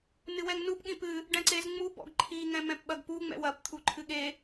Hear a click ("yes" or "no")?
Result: yes